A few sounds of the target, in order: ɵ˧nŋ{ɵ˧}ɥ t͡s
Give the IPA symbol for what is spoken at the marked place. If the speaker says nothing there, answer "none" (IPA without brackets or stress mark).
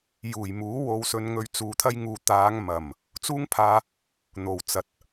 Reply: ɵ˧